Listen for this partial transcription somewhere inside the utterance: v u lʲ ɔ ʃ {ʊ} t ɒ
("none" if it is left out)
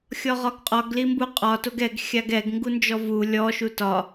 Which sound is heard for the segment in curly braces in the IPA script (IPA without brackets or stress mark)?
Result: u